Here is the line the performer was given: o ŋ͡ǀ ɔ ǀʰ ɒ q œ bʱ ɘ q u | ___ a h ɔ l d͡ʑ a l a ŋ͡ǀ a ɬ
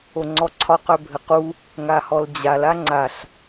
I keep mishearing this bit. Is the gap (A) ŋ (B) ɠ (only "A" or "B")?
A